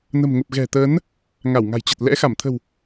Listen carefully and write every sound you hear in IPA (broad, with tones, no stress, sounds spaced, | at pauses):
n ə̤˨˩ m ŋ ə˨˩ p̚ ɣ ɛ̤˨˩ t̪ əː˨˦ n | ŋ a˧˩ w ŋ a̤˨˩ j t͡ɕ ə˨˩ t̚ l ɛ̰˧˥ x a˧˩ m t̪ʰ ə̤˨˩ w